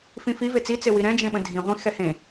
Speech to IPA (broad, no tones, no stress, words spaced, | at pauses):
fĩfi vet͡si t͡sewiɾɛ̃ d͡ʒẽɓə̃dʱĩ ʁʷĩ xɛhẽ